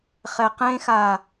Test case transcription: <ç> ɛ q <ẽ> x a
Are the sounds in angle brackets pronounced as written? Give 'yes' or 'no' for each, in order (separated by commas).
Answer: no, yes